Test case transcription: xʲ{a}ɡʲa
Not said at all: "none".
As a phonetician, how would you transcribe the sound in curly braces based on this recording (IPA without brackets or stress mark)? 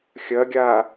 ɐ